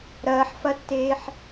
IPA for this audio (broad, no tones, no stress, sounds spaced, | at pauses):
ɾ ɐː ħ f ɐ tː eː ħ